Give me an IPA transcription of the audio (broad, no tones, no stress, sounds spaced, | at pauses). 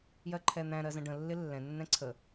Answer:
j ɜ ǃʰ ɛ n̪ æ̃ ɾ ɜ z ə̃ ɖ ə̃ lː ɪ lː ɛ̃ nː ɛ̃ ǀʰ ə